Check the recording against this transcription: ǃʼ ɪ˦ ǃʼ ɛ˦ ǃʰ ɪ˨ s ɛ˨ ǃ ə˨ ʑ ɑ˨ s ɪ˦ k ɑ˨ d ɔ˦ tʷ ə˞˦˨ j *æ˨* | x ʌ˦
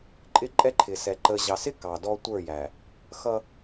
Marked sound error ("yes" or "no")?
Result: no